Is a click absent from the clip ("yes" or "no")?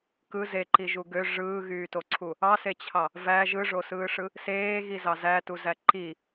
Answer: no